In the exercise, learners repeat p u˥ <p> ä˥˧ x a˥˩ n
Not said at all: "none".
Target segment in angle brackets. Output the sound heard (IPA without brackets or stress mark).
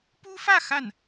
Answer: f